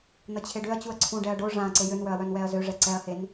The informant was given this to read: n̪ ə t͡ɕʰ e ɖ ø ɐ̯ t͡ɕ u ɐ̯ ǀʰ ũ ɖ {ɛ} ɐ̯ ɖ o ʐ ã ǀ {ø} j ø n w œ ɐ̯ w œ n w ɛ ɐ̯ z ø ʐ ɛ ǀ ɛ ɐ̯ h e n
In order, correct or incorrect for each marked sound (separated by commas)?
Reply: correct, incorrect